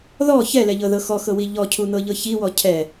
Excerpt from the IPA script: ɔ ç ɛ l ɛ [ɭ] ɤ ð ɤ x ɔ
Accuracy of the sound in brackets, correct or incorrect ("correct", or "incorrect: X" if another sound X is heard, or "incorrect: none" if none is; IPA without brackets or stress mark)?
incorrect: ʎ